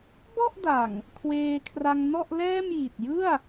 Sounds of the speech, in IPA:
b ɔ˥˩ ʔ d a˨˩ ŋ | kʰ w eː˧ kʰ r a˧ ŋ n ɔ˥˩ ʔ l ɛː˥˩ m j i˨˩ t̚ j ɯ˥˩ a̯

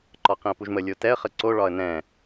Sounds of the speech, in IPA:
ǃ ɒ q ĩ ə̯ p u ʒ m ə lʲ o t ɛ ə̯ χ ə ǀ o ɭ ɒ ə̯ n ɛ̃

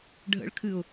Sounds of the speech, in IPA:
ɖʱ ə̰ ɭ kʰ ɨ ʊ̯

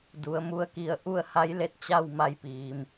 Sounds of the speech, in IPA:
d u˩˧ ə̯ m u˧˥ ə̯ k i˧ ə̯ ʔ u˥˨ ə̯ h a˧˥ j l e˥˨ t̚ t͡ɕ a˥˨ w m a˧ j p iː˩ m

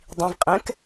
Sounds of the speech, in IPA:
dˤ ĩ v qʼ ɛ̃ k

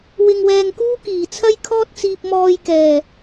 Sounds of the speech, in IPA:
w ɪ˨ ŋ w ɛː˨ ŋ k uː˥ k iː˨˩ t͡sʰ ɐ˥ j kʰ ɔː˥ t̚ t͡s iː˧ p̚ m ɔː˧ j k ɛː˨˩

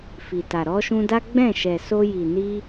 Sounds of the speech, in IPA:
f i˨ t a˨ ɾ ɔ˧ ʃ ũ˧ d a˦ ɡ͡b ɛ̃˦˨ ʃ ɛ˨ s o˧ j i˨ n i˧

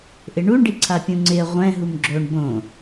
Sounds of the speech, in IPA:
ʔ ɪ ɳ u ɳ ɖ i ǀʰ a pʲ ũ ŋ͡ǀ ɪ ə̯ ʁʷ ɛ̃ ɦ u m ɡ͡ǁ o ɳ b õ

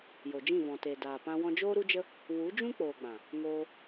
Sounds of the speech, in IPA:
j o˨ d͡ʒ ĩ˦˨ v ɔ̃˨ t e˨ d aː˨ p ã˧ w ɔ̃˧ d͡ʒ oː˦ ɾ u˦ d͡ʒ ə˦ | w u˨˦ d͡ʒ ũ˦ k͡p oː˨ ɡ͡b ã˨ | ŋ oː˧

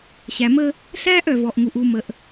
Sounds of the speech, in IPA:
ɕ æ˨ m ə˦ | ɬ æː˦ ʔ œ˨ v ɔ˨ ʔ ŋ u˨ ʔ u˨ m ə˨ ʔ

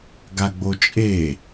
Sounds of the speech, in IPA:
ɡ a ɡ͡b o t͡ʃʼ e

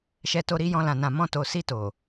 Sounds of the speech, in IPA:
ʃ ɛ˧ t o˧ ɾ i˧ j ɔ̃˧ l ã˨ n ã˨ m ɔ̃˧ t o˨ s i˧ t o˨

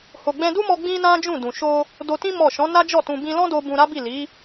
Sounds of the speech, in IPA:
h o˨ ɡ͡b ɛ̃˧ d u˦ m ɔ˧ ɡ͡b ĩ˦ n ã˦ d͡ʒ ũ˦˨ d ũ˨ ʃ o˧ | d o˧ t ĩ˦ m ɔ˦˨ ʃ ɔ̃˨˦ n a˦ d͡ʒ ɔ˦˨ t ũ˧ b ĩ˧ l ɔ̃˦ d o˧ b ũ˧ ɾ a˦ b i˦˨ l i˨˦

